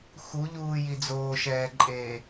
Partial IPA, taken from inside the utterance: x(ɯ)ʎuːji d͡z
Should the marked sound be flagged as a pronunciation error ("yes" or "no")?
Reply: yes